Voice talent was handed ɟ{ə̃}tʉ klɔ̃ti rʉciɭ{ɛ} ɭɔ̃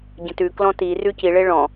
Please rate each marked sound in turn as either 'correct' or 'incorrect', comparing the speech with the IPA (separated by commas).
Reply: correct, incorrect